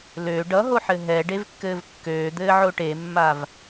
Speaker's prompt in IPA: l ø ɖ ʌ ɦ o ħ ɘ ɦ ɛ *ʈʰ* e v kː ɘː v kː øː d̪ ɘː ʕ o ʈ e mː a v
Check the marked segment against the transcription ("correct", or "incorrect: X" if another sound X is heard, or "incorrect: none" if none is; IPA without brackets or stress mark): incorrect: ɖ